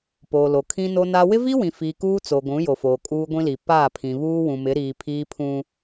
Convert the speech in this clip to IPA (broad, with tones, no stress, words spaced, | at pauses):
poː˨lo˨ kʰĩ˦no˦na˦ wɪ˦vi˦wĩ˨fiː˨ kuː˦t͡so˨ ɡʷũ˨˦jo˨ foː˨kʼuː˦ɡʷĩ˦li˨ paː˦˨pʰĩ˨ βuː˦wũ˨mɪ˨˦ ɾiː˨ pʰiː˦pʰũ˦